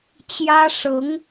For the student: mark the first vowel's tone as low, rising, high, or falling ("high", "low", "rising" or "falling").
high